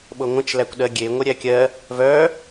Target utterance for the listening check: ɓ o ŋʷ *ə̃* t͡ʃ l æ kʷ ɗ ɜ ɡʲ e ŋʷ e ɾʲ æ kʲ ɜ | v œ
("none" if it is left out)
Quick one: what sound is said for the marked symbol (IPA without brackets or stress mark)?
ə̃